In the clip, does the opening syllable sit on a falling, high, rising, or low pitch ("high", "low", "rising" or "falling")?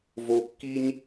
low